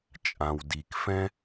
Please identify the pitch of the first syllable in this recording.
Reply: low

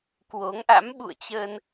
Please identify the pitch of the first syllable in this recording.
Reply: rising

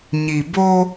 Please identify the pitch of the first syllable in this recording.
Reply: low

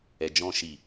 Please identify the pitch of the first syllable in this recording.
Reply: low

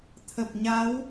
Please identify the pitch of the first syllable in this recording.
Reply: low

